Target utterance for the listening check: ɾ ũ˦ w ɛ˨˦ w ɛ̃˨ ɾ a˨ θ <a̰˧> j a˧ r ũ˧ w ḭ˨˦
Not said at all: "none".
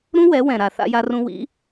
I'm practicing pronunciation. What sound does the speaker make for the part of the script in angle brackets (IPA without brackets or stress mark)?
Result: a̰˧